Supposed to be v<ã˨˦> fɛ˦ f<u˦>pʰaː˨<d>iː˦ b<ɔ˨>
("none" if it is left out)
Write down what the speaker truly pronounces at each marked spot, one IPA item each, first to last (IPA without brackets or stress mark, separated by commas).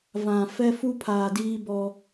ã˨, u˦, d, ɔ˦